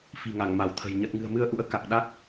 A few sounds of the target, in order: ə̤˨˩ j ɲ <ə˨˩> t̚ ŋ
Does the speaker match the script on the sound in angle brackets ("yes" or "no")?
yes